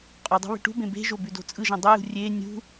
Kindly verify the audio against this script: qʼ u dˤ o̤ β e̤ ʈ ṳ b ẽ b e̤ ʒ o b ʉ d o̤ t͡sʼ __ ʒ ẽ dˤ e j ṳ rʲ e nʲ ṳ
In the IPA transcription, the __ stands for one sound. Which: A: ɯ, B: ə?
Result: A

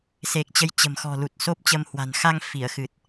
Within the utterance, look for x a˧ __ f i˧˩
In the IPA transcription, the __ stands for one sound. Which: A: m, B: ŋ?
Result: B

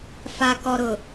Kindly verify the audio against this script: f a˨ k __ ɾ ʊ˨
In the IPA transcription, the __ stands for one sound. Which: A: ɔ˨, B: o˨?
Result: A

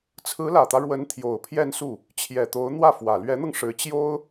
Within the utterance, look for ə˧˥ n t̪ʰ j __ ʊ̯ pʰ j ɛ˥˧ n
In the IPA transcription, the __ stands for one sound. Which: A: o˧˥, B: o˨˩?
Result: B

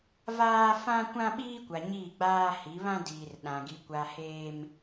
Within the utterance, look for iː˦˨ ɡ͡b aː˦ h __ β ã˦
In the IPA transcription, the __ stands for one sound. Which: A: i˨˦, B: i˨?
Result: A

